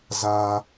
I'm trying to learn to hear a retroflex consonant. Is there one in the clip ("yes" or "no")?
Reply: no